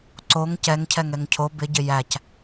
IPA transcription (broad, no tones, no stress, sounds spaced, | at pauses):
ǀ o ŋ c ɛ ŋ cʰ ɛ ŋ ɛ ŋ cʰ o b ɪ ɟ ɪ j æ c